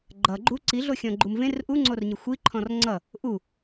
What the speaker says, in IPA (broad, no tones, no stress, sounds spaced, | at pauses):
ɡ͡ǃ ʌ ɡ͡ǃ u ǀ i ɮ o xʲ ɔ̃ ɡ͡ǃ u m v ẽ r ʔ u ŋ͡ǀ o r ɲ ɪ xʷ i ǃʰ ɔ̃ r ŋ͡ǀ ʌ | ʔ u